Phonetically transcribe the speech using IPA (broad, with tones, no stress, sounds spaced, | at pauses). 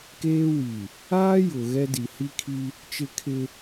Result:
k eː˦ w i˨ | aː˦ j ʊ˨ ɣ ɛ˦ d i˨ h i˦ kʰ i˦ | t͡ʃ ɪ˦ kʰ ɪ˦